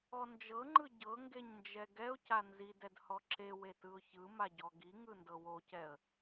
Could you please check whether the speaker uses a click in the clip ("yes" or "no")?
yes